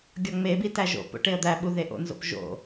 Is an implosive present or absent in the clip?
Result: present